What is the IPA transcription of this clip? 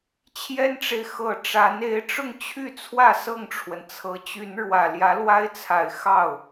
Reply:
t͡ɕʰ j ɛ˥ n ʈ͡ʂ e˨ ɪ̯ x ɤ˥˩ ʈ͡ʂ a˧˥ n e˧˥ ɪ̯ ʈ͡ʂ ʊ˥˧ ŋ t͡ɕʰ y˥˧ t͡sʰ w ä˥˧ s ɤ˥˩ ŋ ʈ͡ʂʰ w ə˩ n t͡sʰ ɤ˧˥ t͡ɕ y˧˥ n ɻ w ä˨˩ l j ä˧˥ l w a˥ ɪ̯ t͡sʰ a˨˩ ɪ̯ x ɑ˥˩ ʊ̯

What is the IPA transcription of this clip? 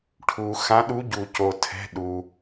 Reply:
ʈʰ u˩ x ã˨˦ ɗ u˨˦ ɟ u˩ c o˩ tʰ ɛ̤˩˧˩ ɗ u˩

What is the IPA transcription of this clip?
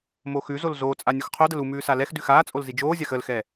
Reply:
m o x ʉ z o l z oː t͡sʼ a nʲ o x qʰ o d ə l u m ʉː s a l ɛ x d ʉ x aː t͡sʼ o l z i d͡ʒ oː zʲ a x ə l x ɛ

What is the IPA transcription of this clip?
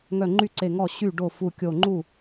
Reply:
ŋ œ˧˩ ŋ͡ǃ y˥˩ ǀ e˧˩ ŋ ɔ˥˩ ɕ y˥˩ ɖ o˥˩ f u˧˩ kʲ o˧˩ ŋ͡ǃ u˥˩

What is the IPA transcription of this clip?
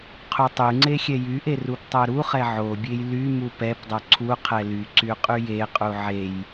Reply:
qʰ u tˤ y ŋ͡ǀ e xʲ ɛ j y ʔ e r u p tˤ œ ɾ u χ ɛ ʕ o bʲ e j l y m u p ɛ p dˤ œ ǀʰ u qʰ ɛ l y ǀ y qʼ y j e qʼ u ʕ e j

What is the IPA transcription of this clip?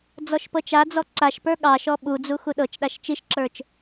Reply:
d͡z ɔ ʃ p ɤ t͡ʃ a d͡z ɔ ǀ a ʃ p ə˞ ɠ ɑ ʃ ɔ ɓ u d͡z u x u ɗ ɤ t͡ʃ ɗ a ʃ t͡ʃ i ʃ ǁ ə˞ t͡ʃ

